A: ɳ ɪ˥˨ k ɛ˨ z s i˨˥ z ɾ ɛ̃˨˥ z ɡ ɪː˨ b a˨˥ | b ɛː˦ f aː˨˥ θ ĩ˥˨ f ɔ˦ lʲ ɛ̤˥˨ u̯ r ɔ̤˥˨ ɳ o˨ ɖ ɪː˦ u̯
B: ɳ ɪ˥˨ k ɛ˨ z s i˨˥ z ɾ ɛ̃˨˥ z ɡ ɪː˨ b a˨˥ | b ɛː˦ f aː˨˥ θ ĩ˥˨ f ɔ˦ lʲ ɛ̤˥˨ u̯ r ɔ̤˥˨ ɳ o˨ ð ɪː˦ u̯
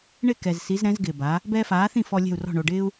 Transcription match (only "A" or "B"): A